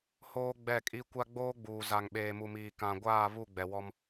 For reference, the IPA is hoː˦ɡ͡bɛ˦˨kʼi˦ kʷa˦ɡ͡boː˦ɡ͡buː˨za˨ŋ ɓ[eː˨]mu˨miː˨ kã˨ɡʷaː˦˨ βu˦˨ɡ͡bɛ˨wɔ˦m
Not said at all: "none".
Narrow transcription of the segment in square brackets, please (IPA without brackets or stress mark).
eː˨